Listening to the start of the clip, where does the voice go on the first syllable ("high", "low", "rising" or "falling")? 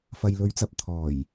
low